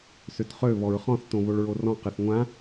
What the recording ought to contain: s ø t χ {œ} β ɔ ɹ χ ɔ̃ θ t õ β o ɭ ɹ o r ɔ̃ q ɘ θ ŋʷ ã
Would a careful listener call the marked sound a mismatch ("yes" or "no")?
yes